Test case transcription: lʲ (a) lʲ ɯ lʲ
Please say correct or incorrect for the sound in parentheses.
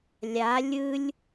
correct